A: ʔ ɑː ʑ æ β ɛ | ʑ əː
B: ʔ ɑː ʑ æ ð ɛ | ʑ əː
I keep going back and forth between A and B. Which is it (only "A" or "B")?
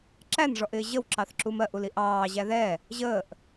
B